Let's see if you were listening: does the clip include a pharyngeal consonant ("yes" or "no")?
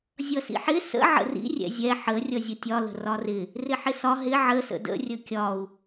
yes